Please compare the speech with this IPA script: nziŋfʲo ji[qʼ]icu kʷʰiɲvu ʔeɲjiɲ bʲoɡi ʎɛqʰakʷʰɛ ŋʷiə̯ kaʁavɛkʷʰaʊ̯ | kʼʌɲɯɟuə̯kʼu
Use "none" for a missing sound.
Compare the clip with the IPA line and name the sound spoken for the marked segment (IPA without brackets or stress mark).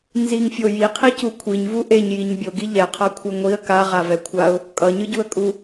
qʰ